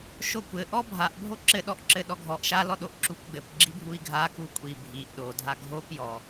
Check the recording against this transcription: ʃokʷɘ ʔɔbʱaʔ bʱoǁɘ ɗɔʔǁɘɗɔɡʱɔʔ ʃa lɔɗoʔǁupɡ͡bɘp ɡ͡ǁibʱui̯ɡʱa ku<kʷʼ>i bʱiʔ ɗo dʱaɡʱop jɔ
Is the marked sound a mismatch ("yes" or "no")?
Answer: no